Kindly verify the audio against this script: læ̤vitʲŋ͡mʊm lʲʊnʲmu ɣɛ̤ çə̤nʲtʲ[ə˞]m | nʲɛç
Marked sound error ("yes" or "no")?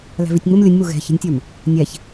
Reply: no